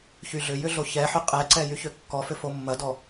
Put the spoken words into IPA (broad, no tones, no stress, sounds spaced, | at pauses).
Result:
ç y ɮ ʏ j ʏ ɮ o ç ɛ ħ ʏ qʼ ɛ ǀ ɛ j y ç ø kː ɔ f ʏ f o mː ɐ d ɔ